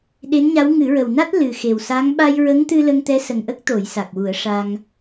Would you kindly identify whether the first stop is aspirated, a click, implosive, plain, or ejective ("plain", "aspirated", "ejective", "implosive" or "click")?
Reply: implosive